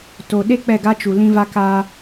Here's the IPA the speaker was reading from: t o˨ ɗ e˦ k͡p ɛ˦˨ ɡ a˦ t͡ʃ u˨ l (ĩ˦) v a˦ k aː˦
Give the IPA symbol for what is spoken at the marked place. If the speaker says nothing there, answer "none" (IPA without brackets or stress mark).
ĩ˦